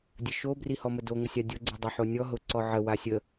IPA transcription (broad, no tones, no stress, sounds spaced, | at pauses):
dʲ ə ʃ o b r i h ɔ m ə d o ŋ ə sʲ a dʲ o ɡ͡ǀ i dˤ ʊ ħ o nʲ ɔ ɦ ʊ ǀ ɔ ʕ ə w a sʲ ə